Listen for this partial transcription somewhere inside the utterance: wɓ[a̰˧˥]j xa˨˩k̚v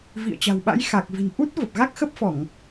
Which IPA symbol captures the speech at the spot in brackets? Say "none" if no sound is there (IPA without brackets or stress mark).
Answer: a̰˧˥